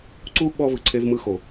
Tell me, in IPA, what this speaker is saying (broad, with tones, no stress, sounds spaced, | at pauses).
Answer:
ǀ u˥ ɓ ɔ˥ v ɯ˩ ǀʰ e˥ v m ɯ˥ x o˩